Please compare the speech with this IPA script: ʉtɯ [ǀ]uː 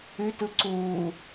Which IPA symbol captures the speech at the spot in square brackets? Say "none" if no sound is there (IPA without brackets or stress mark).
ǀ